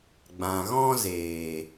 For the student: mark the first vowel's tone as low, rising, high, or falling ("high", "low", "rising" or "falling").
low